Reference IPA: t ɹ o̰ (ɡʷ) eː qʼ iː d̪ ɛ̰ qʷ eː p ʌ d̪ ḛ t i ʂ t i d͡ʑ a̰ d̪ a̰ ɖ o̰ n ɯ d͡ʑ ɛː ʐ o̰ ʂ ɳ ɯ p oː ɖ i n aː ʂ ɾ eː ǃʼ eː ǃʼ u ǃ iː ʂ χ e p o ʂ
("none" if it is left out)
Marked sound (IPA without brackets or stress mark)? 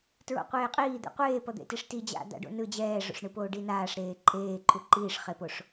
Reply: qʷ